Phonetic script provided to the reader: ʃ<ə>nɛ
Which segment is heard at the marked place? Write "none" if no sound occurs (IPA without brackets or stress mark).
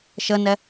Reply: ə